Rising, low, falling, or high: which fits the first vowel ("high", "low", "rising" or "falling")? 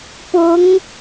rising